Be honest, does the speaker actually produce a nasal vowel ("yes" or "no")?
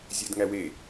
no